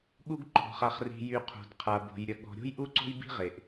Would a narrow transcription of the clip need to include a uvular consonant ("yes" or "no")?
yes